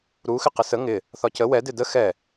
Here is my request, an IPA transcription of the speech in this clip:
ɾ u x ɪ q ɪ s ə ŋ ɪ | θ ɒ c ə w ɛ d ɪ d ə x ɛ

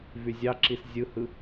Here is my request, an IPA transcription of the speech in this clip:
v y zʲ ɑ ǁ i s zʲ ɯ h ɯ

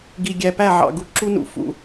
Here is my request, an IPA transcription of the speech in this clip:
ɡ i˨ ɡʲ æ˨ p æ˦˨ ʕ ɑ̰˨ ɡ u˨ ǁ u˦ n ṵ˨ f ṵ˦

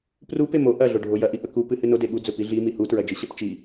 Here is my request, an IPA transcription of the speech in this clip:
p r u p e m o ʔ ɐ ɮ o ɖʱ o j ɐ ʔ i ʔ ɵ k u p ɨ h ɨ n o d e ɠ u d͡z ɵ p i ɮ i m i h u t ɹ ɐ d͡ʒ ɨ ɕ ɐ p t͡ʃ i

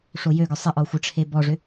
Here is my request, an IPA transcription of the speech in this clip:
ʂ o j ø ɡ œ sˤ ɪ ʔ ɔ xʷ ə ʈ͡ʂʰ e b ɔ ʐ ʏ

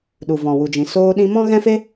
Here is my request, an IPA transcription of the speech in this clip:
ɗ u˨ v ɔ̃˨ w u˨ d͡ʒ ĩ˨ s oː˧ ɗ ĩ˧ m ɔ̃˦ ɣ ɛ̃˦ f e˦

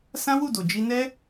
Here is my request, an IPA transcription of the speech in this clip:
s ã˦ w u˦˨ d o˨ d͡ʒ i˧ n ɛ˦

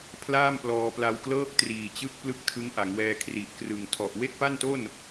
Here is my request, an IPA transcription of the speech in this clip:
pʰ l aː˥˩ m p l ɔː˧ p l a˧ w k l ɤː˥˩ k̚ t r iː˨˩ t͡ɕ ɯ˦˥ k̚ p l ɯ˥˩ k̚ tʰ ɯ˦˥ ŋ ʔ a˩˦ ŋ w ɛː˧ kʰ r i˨˩ ʔ k r ɯ˨˩ ŋ tʰ ɔ˨˩ ʔ w e˥˩ k̚ p a˥˩ n t o˥˩ n

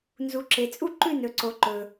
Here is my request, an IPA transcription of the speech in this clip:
n z u˩ ǁ e˩ t͡sʼ u˦˨ ǃ ʉ˦˨ n ɵ˩ ǀ o˩ ǃ ɵ˩

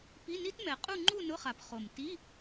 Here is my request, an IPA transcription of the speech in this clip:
p i˧˥˧ n i˦˥ t m ɛ˨˩ qʼ u˥˧ ŋ͡ǃ u˥˧ n ʊ˧˥˧ χ a˨˩ p χ o˨˩ m t i˧˥˧

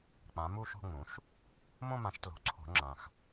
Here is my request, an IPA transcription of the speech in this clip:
k͡p ã˩˥ m u˥˧ ʃ o̤˥˧ ŋ͡m ũ˩˥ ʃ | m õ˥˧ m ã˨˩˦ ʃ t l o̤˨˩ ǀʰ o̤˨˩˦ ŋ͡ǁ ã˨˩ x

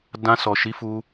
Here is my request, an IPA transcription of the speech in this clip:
d ã˧ s ɔ˨ ʃ i˨˦ f u˧

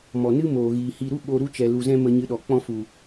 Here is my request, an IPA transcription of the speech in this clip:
m ɔ˨ n ɨ˦ m oː˨ ɣ iː˨ h i˧ ɾ u˦ ɓ o˧ ɾ u˦ t͡ʃ ɛ˨ l u˨ z ɛ̃˧ m ə˧ ɲ ɨ˧ ɗ ɔ˨ k͡p ɔ̃˧ f u˨

